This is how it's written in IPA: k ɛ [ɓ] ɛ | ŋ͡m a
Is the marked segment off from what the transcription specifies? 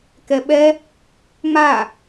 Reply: no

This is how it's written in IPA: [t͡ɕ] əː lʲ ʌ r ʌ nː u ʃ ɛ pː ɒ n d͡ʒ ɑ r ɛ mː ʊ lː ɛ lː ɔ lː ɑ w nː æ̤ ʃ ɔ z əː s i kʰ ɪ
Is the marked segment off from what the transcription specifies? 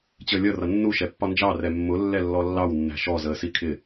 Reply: no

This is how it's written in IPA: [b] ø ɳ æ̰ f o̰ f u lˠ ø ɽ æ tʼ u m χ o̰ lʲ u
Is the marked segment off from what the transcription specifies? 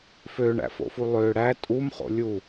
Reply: yes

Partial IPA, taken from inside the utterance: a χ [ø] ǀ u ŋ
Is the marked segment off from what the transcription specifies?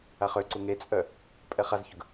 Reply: no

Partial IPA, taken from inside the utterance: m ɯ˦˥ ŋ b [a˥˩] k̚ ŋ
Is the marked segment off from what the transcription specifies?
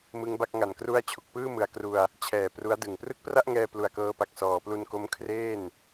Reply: no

